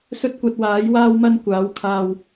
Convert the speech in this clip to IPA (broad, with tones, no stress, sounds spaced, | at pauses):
s ɵ˥ t̚ kʷ ɐ˧ t̚ w aː˨˥ j w aː˥ w m ɐ˥ n kʷ aː˨˥ w kʰ aː˧ w